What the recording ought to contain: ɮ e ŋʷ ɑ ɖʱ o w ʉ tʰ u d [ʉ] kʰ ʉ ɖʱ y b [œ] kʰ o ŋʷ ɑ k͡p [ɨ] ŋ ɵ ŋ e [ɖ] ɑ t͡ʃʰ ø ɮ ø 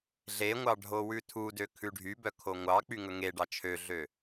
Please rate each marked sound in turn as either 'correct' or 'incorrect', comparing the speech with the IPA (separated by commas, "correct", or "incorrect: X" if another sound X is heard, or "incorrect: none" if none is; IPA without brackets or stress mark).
incorrect: ø, correct, incorrect: y, correct